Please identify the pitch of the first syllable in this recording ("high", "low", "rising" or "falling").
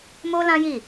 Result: high